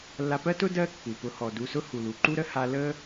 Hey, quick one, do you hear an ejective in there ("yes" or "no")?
no